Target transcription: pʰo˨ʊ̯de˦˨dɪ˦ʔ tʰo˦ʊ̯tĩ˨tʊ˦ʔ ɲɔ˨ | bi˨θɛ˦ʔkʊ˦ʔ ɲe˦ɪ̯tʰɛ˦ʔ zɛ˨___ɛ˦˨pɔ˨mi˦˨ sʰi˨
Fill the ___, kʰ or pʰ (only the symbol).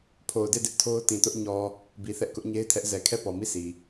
kʰ